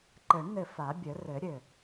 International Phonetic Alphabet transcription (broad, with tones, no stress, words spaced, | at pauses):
ǃɘ˨˩˦ɳn̪ɘ˧˩ fa˨˩˦bʲə˨˩˦rɘ˨˩˦ ɾʲɘ˧˩